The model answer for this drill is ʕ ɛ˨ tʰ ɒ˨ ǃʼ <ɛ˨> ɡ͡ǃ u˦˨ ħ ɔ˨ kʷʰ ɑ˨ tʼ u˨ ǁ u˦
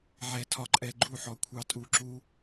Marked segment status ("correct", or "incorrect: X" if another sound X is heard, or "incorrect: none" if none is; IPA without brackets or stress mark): correct